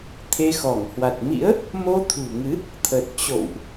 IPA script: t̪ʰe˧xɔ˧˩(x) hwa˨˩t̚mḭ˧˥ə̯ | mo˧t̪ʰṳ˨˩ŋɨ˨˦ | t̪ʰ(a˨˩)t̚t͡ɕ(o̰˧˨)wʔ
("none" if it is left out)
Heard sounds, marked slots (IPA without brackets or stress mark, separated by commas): ŋ, ə˨˩, o̰˧˨